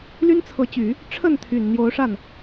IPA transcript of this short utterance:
ly˥nt͡sʰɤ˧˥t͡ɕy˨˩˦ | ʈ͡ʂʰə˥˩nt̪ʰy˨˩n n̪jo˧˥ʊ̯ʂa˥˩n

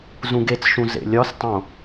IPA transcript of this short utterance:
zũɡet͡sʃũ zḛlʲɒstˤõ

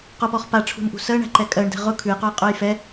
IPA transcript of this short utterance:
qʊpɔχ paʈ͡ʂʰṳnʔṳ sɜɳæ̤ǃɛ kʼɜɳdɛ̤ ʁʊ kʰʉjqʉjqʼʉj fɛ

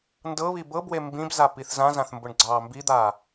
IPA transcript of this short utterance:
ndɤβi bɤbwe mbĩbza piθzãzãθ mbʊɳɡ͡ǀɑːmbid̪aː

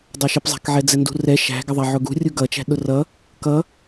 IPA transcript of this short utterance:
dˤæʃɪpzˤæ̤kʕɛ d͡zɛndṳrɛ ʃæ̤ɡɪðˤæ ʕʊɡṳ rʲuɡʌt͡ʃæ̤ ɗʊrʌ | kʌ

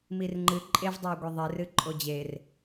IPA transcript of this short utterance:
mirŋ͡ǃɨ ǃʼevdˤɐo̯ɡʷɛ ðˤerɨ ǃʼod͡ʑer

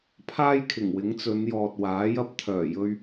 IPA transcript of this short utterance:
pʰaː˥jkʰɪ˨˩ŋwɪ˨˥ŋ t͡sɵ˨˧njɔː˨t̚waː˨˥jɐ˥p̚ t̪ʰœː˨˩jɵ˧ɥ

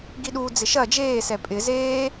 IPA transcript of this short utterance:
ɡiɗud͡zɪ ʃɐ d͡ʒeːsɛ pʼɪ zeː

